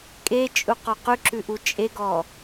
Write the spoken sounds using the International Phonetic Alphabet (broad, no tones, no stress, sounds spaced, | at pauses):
kʼ e t͡ʃʼ u q ɔ q ʉ ǁ ʉ ʔ u t͡ʃʼ e ɡ ɔ